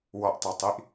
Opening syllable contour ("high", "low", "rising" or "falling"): low